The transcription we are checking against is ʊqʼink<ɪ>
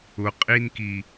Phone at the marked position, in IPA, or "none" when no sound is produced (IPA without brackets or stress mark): i